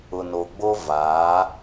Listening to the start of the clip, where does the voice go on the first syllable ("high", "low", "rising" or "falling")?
low